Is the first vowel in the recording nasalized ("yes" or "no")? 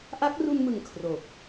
no